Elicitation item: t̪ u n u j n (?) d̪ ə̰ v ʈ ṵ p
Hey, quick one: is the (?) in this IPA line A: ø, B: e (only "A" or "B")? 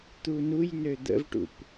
A